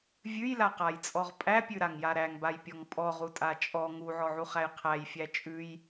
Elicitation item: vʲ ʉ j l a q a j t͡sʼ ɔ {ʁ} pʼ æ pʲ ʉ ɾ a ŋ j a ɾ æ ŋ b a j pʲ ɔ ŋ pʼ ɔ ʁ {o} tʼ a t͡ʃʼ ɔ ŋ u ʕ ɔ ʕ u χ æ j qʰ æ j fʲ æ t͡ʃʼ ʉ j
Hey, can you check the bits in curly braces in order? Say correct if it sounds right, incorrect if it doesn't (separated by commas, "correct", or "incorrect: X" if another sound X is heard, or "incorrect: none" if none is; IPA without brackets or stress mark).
correct, incorrect: u